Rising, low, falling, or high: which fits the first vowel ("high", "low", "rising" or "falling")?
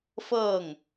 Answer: falling